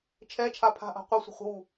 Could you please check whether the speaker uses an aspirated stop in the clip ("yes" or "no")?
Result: yes